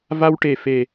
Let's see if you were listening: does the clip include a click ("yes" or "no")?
no